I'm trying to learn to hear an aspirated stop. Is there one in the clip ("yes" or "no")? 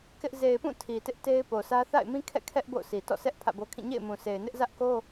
yes